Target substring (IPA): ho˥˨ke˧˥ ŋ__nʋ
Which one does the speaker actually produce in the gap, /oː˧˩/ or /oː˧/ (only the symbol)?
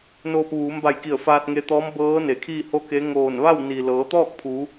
oː˧˩